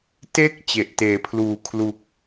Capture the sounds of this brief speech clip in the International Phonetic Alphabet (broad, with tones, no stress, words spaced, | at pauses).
te˥˩k̚ t͡ɕe˨˩ʔteː˩˦pʰluː˨˩ kʰlu˨˩k̚